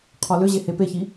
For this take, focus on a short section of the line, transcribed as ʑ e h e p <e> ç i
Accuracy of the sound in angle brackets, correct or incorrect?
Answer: correct